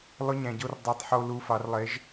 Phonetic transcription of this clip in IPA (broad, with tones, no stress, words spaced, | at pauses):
lˠʊ˧˥˧ɲæ̃˨ɟo˦˨r dˤa˦˨tˤħo˦˨ lu˦˨fɑ˨˥r lˠe˨˥ʒ